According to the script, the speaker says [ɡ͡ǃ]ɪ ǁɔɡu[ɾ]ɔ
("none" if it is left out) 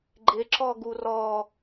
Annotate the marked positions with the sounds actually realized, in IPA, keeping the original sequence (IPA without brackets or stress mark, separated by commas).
ɡ͡ǃ, r